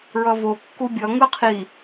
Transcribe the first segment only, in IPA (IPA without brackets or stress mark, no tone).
ɹ